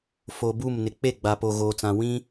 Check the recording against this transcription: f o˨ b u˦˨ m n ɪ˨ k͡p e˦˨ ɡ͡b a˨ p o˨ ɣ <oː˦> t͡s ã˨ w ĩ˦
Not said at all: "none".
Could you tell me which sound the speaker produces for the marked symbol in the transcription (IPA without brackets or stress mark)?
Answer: oː˨